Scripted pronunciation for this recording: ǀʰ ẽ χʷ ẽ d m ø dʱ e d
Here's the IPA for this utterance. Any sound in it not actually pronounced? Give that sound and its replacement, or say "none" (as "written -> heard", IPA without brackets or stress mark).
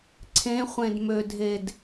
none